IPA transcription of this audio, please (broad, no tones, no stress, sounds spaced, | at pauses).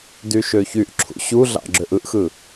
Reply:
d y ʃ ø ç y ʔ ǁʰ ṵ ɕ u ɮ ɑ̰ ɡ͡ǁ ø ʔ ɯ ʔ x ɯ